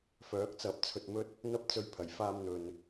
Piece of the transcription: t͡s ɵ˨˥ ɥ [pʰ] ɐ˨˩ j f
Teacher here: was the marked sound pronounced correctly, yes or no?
yes